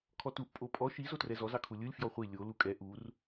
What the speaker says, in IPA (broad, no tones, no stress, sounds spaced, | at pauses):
kʰ ɔ t u ʔ pʼ o pʼ ɔ ʃ i z o t r ɛ z ɔ z ɑ kʰ u lʲ ɯ lʲ f j ɔ χʷ i lʲ o l u kʼ ɛ ʔ u r